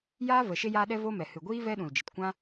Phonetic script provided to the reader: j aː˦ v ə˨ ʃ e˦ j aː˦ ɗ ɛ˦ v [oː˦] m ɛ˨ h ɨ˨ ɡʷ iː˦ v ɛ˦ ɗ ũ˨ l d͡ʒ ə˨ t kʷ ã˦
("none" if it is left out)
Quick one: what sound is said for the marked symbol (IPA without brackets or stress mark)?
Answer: o˦